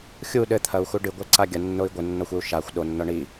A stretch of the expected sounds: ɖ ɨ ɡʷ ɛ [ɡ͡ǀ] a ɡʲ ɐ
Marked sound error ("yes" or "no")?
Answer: yes